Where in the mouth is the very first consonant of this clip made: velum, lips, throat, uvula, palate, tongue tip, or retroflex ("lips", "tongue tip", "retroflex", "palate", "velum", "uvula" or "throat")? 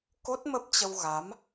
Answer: velum